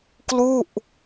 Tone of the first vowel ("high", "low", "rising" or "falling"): falling